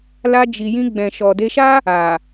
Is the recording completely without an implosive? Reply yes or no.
yes